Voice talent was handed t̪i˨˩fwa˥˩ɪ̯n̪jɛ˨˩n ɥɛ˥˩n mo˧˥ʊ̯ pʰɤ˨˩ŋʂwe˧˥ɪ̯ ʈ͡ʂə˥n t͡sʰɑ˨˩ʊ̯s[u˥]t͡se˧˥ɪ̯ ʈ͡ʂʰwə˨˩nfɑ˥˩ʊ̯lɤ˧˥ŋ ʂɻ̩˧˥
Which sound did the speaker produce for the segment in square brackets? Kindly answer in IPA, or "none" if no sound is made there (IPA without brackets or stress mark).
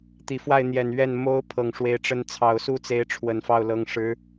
u˥˩